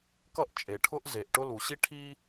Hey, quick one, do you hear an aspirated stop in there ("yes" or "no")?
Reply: yes